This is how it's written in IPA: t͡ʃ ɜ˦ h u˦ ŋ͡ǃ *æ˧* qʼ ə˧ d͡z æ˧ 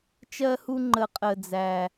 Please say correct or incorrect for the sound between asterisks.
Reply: incorrect